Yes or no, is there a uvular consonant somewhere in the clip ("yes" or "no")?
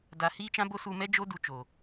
no